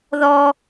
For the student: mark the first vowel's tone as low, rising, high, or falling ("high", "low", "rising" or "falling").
high